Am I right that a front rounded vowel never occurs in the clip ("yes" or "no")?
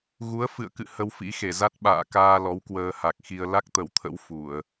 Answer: yes